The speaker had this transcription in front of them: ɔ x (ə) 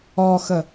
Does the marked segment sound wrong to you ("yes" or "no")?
no